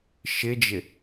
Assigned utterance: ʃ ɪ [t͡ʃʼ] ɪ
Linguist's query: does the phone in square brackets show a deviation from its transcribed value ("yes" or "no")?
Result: yes